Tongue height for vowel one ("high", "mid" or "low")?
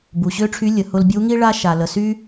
high